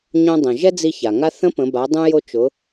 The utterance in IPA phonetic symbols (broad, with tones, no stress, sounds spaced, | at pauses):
ɲ õ˧ dˤ ə̃˩ ʒ ɛ˥ d͡z i˧ ç a˩ ŋ a˧ θ ə̃˧˥ p ə̃˩˧ b a˩˧ dˤ ũ˧ j o˧ t͡ʃ ʊ˩˧